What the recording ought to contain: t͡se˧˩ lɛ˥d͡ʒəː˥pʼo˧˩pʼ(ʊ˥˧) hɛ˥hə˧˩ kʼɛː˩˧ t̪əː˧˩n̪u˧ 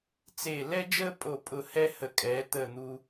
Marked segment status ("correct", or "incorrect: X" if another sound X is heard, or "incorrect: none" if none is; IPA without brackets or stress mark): incorrect: ʊ˧˩